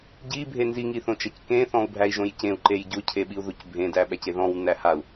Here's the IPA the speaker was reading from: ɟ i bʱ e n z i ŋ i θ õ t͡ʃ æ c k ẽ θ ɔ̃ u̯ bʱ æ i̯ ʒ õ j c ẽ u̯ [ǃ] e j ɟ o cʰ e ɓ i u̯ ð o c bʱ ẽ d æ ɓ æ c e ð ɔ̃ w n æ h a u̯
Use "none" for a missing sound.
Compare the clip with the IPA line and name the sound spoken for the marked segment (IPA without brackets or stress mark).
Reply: ǃ